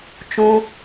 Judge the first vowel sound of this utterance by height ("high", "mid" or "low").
high